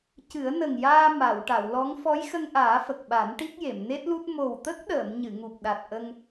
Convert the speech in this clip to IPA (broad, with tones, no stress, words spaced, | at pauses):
cɨ˨˩˦ə̯nə˨˩ŋjaː˧ ma˨˩˨w ʈa˨˩˨wlɔ˧˥ŋ fɔ˧˥jxə˧ŋʔaː˨˩˦ fə˨˩k̚ɓa˨˩˦nʈi˦˥k̚je˨˩˨m ne˦˥t̚lu˦˥t̚ mo˨˩wt̪ə˦˥k̚ɗəː˨˩˨m ɲɨ˨˩˨ŋu˨˩p̚ ɗa˨˩t̚ʔə˧ŋ